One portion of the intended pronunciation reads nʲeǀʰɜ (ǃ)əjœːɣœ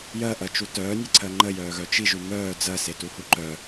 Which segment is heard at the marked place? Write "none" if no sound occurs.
ŋ͡ǃ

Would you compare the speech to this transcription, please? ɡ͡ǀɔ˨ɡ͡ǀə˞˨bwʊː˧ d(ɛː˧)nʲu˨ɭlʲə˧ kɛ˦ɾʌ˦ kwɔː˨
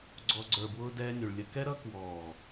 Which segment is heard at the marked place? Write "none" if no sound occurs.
ɛː˧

